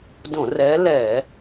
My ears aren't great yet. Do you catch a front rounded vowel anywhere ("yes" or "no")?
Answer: no